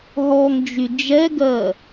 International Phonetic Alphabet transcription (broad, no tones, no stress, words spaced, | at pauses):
ɦɔŋd͡ʒy d͡ʒɛɡɜ